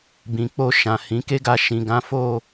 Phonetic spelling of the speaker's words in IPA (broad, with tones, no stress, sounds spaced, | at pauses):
b ĩ˨ k͡p o˧ ʃ ã˨ h ĩ˨˦ k e˦ ɡ a˧ ʃ ĩ˨ ɡ ã˨˦ f o˦˨